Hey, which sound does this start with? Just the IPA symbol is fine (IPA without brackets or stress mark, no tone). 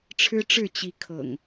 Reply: ʈ͡ʂʰ